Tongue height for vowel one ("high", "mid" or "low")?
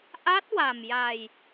low